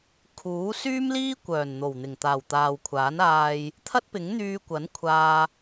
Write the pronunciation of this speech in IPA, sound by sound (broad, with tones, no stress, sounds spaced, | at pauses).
kʰ uː˨˥ s yː˥ m l iː˥ kʷ œː˨˩ n n̪ o˨˩ w n̪ ɪ˨˩ ŋ t̪ aː˨˩ w t̪ aː˨ w kʷʰ aː˨˥ n aː˧ j | t̪ʰ ɐ˥ t̚ p ɪ˨˥ ŋ n̪ yː˧ kʷ ɐ˨˥ n kʷʰ aː˧